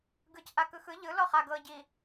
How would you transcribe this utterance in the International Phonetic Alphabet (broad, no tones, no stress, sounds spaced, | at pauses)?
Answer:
ɡ ɯ c ʔ a k ɯ x ɯ ʎ ɯ l ɔ χ a ɡ ɤ ɟ i